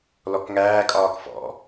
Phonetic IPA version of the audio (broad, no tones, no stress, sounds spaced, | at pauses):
l ɔ k ŋ æː kʼ ɒː k f ɔ̰